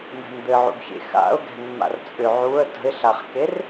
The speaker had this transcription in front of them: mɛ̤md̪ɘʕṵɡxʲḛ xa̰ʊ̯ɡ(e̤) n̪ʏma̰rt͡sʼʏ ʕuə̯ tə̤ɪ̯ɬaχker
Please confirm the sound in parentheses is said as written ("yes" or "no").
no